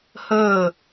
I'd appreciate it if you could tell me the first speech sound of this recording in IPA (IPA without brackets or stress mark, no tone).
h